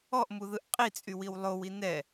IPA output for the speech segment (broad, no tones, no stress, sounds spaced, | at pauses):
ɔ ʔ m u ð ɯ ʔ qʼ i t͡sʼ y w i w lˠ o w i n ɛ